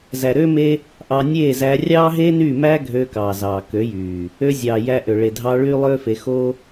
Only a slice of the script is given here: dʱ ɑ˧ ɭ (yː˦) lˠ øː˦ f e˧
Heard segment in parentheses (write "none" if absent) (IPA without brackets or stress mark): yː˦